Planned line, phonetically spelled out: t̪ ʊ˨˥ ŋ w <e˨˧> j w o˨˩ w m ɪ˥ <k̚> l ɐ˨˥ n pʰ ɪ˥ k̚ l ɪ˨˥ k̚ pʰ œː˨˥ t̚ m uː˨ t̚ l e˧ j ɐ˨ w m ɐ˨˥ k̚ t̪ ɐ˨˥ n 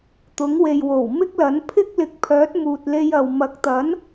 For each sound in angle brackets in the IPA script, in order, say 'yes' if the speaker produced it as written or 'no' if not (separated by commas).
no, yes